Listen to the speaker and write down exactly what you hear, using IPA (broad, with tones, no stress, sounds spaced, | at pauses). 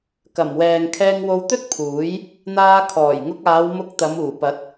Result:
k ɐ˨˩ m w ɛː˨ ŋ kʰ ɛː˧ ŋ w o˧ w t̪ ɵ˥ t̚ pʰ uː˨˥ j | n̪ aː˧ kʰ ɔː˨˩ j ŋ ʊ˧ k̚ aː˨˧ w m ʊ˧ k̚ t̪ ɐ˨˧ m uː˨˩ p ɐ˨˥ t̚